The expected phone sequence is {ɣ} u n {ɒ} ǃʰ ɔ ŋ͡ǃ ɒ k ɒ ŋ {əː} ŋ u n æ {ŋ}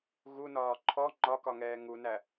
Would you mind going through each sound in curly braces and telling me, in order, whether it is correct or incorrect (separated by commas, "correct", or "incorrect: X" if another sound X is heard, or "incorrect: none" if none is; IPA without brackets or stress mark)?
correct, incorrect: ɒː, incorrect: ɛː, incorrect: none